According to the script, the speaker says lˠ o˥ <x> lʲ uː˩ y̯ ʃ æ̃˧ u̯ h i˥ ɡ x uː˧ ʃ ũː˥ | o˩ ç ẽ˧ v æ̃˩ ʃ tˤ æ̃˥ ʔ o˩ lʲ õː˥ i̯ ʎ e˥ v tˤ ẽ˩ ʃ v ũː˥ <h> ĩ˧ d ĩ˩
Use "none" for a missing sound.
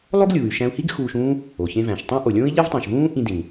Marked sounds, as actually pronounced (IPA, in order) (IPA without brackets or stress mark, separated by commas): ɡ, ʔ